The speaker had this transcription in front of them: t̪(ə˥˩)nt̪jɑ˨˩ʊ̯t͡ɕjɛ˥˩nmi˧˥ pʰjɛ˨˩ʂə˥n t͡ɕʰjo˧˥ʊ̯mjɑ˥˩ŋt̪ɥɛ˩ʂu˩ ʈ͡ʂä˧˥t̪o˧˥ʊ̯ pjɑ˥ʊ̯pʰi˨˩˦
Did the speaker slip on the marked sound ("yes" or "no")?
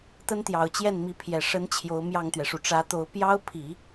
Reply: yes